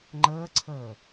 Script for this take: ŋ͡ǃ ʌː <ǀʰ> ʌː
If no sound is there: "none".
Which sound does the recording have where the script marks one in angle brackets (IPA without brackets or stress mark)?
ǀʰ